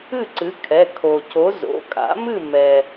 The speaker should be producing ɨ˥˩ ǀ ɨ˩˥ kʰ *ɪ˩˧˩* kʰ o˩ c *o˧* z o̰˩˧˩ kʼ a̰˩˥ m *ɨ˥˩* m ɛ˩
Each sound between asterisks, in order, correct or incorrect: incorrect, incorrect, correct

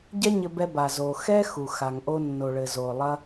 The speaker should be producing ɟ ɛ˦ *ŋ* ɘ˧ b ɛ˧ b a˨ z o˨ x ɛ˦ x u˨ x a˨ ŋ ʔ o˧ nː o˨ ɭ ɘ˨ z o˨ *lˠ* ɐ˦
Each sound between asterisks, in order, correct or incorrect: incorrect, correct

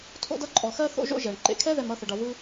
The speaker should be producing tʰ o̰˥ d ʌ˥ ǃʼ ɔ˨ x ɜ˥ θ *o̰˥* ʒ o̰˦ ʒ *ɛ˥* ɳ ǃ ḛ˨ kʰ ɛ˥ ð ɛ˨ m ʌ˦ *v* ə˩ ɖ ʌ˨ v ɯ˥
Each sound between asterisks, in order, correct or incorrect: correct, incorrect, incorrect

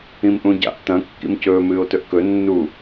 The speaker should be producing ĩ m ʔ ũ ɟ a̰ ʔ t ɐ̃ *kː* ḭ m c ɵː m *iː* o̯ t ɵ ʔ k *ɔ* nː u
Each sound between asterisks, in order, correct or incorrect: correct, incorrect, incorrect

